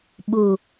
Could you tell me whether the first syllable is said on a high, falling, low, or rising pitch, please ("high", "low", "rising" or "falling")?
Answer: low